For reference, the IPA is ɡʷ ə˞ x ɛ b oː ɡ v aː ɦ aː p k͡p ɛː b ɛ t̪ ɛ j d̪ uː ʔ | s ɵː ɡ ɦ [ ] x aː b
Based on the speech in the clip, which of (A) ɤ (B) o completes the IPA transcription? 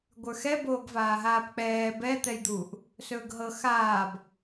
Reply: A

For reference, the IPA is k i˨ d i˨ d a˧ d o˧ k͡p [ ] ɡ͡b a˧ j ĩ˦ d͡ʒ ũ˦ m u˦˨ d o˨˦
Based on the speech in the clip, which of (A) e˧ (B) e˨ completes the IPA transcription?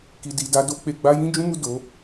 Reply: B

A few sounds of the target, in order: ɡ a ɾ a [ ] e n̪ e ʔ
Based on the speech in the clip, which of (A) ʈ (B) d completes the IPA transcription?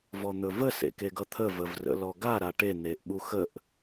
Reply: A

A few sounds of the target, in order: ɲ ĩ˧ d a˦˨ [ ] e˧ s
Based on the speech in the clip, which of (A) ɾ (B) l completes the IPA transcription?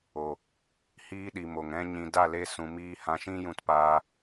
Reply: B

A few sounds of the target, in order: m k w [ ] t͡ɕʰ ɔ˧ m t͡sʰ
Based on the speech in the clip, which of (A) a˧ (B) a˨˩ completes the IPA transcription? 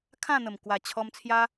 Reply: B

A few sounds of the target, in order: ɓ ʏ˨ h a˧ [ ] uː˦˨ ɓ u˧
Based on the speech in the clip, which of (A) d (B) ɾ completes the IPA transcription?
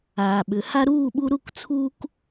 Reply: B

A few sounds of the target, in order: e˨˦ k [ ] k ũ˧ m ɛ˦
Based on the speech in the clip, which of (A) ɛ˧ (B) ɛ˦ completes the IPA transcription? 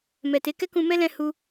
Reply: B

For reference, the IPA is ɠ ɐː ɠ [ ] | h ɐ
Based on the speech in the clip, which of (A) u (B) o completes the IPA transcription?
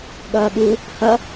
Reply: A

